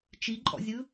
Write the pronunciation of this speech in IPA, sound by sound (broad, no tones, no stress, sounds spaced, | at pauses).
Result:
t͡ʃ i ǃʼ ɔ̰ zʲ ɯ